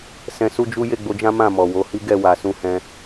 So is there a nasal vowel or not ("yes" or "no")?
yes